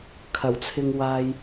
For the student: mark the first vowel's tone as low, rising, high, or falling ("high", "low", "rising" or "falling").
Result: low